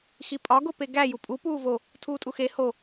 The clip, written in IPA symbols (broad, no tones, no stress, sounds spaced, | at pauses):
x i pʼ ɒ ɡ o p e ɡ æ j u pʼ u p uː v o | tʰ uː tʼ u x e h o